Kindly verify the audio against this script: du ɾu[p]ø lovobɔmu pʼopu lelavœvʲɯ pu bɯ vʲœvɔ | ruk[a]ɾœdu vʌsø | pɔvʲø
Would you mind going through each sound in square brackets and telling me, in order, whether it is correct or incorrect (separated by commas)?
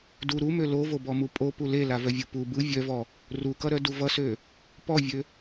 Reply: incorrect, incorrect